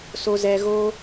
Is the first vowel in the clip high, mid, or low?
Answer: mid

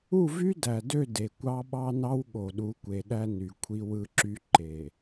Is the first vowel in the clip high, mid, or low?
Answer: high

